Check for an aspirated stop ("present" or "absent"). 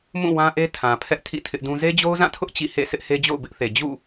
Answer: present